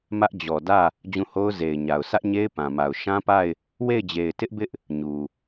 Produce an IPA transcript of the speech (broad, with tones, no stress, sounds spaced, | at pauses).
m ä˦ ʔ d͡ʑ ɔ˨ d ä˦˨ | d͡ʑ ũ˦˨ h o˦ ʊ̯ z e˨ ɪ̯ ɲ a˨ ʊ̯ s ä˦ ʔ ɲ e˦ ɪ̯ p ã˨ m a˨ ʊ̯ ʃ ã˦ p a˦˨ ɪ̯ | w e˦˨ ɪ̯ d͡ʑ e˨ ɪ̯ t ɪ˦ ʔ b ɪ˦ ʔ | ɲ u˨